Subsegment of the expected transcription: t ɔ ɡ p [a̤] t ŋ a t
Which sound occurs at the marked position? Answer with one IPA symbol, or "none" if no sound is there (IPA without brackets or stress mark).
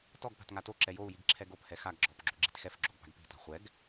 a̤